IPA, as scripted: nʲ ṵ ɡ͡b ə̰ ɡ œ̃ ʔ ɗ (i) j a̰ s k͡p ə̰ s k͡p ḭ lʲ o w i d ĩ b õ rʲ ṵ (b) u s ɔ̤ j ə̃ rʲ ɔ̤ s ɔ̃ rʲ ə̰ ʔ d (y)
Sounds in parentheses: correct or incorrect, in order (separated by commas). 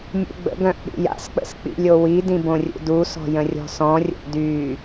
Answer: incorrect, incorrect, correct